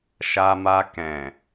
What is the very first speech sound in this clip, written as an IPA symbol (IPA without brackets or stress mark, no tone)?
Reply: ʃ